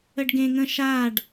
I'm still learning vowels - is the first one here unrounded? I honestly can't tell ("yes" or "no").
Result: yes